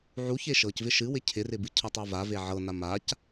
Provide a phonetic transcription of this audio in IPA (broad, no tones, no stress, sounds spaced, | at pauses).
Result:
ʕ u ç e ʃ ɤ c v ɪ ʃ ɨ w ɪ cʰ ɪ r ɪ b ɨ cʰ ɤ tˤ a v a v e ʕ ɤ n a m a c